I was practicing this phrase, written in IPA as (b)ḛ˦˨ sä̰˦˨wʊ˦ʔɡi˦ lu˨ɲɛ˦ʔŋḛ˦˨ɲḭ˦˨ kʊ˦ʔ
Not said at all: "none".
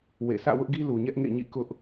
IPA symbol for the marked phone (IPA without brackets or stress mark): w